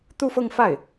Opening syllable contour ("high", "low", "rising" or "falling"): falling